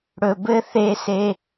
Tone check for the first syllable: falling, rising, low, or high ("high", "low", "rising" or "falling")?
low